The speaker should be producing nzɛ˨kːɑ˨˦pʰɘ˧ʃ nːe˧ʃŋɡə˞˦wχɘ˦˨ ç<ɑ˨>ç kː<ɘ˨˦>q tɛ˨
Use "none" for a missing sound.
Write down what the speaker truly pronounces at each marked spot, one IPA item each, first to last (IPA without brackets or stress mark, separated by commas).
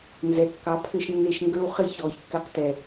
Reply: ɔ˨, ɘ˧